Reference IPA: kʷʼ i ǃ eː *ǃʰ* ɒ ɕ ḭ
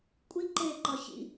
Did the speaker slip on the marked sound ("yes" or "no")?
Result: yes